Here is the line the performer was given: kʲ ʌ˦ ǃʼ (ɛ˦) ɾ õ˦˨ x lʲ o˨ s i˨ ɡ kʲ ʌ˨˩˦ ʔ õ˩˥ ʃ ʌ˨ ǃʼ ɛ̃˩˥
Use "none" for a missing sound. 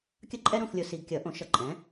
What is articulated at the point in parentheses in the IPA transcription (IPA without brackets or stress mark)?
ɛ˦